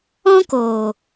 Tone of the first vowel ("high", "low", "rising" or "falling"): high